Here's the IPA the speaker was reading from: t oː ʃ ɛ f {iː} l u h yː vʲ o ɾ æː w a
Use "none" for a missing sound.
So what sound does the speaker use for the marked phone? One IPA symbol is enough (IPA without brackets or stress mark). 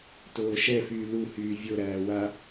yː